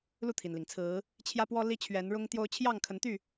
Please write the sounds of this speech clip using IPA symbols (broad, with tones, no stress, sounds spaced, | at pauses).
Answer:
l u˥˨ t̪ʰ i˩ n l i˩ ŋ t͡sʰ ɹ̩˨˦ | t͡ɕʰ j ä˦ p w ɔ˦ l i˦ t͡ɕʰ ɥ ɛ˨˦ n ɻ ʊ˦ ŋ t̪ j o˦ ʊ̯ t͡ɕʰ j ɑ˥˨ ŋ kʰ ə˨˦ n t̪ y˥˨